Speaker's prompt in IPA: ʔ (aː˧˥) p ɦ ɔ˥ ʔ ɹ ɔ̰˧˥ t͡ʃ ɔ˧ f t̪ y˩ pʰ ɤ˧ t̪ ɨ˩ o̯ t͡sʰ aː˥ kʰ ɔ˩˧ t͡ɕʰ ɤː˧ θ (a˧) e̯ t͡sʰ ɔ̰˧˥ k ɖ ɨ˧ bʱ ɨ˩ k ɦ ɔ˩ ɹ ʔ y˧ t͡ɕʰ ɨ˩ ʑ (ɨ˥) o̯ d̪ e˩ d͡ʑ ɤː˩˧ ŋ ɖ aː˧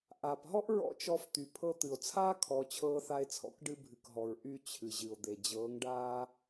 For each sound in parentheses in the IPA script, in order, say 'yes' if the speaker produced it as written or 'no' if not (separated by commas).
no, yes, no